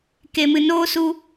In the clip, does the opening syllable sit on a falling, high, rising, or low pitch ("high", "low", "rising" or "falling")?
low